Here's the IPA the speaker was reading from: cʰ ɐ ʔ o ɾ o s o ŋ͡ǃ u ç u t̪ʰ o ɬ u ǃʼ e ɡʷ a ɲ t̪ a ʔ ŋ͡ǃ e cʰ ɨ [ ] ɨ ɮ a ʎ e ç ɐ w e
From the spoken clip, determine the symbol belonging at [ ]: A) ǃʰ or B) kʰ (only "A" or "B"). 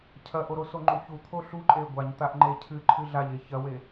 A